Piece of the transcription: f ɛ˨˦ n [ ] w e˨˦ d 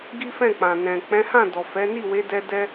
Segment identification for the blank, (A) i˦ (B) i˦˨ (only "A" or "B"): B